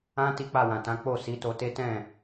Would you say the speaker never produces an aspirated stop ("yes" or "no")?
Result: yes